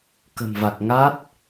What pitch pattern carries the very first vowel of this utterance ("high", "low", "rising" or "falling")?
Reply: low